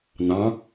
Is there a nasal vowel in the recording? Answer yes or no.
yes